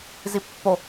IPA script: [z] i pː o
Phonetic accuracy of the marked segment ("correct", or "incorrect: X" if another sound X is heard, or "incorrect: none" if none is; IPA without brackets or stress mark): correct